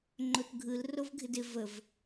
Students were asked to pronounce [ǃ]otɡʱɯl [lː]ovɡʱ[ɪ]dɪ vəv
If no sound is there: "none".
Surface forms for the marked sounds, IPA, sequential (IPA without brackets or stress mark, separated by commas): ŋ͡ǃ, r, ɪ